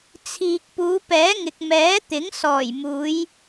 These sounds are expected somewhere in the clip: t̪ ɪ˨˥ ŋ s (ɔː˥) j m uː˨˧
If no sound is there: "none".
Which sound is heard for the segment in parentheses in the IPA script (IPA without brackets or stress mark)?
ɔː˨˩